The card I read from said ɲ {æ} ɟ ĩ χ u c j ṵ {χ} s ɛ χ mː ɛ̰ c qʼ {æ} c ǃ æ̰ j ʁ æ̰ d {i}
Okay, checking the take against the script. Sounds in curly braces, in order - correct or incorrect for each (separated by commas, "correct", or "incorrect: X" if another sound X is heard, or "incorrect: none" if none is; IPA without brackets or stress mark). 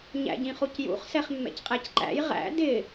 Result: incorrect: æ̰, correct, correct, incorrect: ɪ